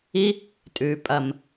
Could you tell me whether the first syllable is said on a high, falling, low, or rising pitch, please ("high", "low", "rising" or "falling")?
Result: high